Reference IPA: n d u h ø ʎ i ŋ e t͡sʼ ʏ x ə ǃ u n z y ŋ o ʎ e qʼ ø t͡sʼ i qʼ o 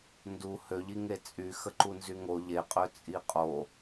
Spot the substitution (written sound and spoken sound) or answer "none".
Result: ʏ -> y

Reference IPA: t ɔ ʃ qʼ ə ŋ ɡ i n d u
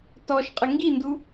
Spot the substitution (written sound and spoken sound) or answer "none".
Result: none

